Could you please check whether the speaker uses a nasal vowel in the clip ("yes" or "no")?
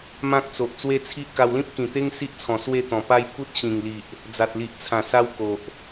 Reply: yes